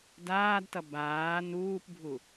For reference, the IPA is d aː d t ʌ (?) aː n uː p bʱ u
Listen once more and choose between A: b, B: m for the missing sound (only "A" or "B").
A